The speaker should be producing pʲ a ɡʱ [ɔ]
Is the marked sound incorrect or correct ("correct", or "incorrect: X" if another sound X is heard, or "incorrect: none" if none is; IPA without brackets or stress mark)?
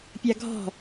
incorrect: ɔ̤